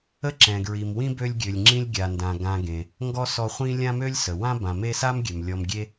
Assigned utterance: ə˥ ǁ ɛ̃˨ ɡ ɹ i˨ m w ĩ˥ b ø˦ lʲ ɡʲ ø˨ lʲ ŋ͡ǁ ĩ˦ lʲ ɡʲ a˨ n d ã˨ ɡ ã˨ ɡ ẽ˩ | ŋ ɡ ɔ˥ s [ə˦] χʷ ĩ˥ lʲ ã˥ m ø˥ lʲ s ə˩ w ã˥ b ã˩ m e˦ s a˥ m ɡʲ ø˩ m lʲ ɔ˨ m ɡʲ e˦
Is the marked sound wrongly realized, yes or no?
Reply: yes